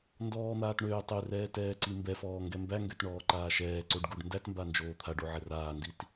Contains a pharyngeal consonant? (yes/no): yes